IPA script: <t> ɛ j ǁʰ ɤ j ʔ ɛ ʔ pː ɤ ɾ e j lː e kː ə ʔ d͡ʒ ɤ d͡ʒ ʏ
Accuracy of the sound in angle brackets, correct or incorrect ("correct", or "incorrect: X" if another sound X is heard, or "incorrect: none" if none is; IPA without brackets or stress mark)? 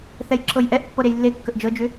incorrect: θ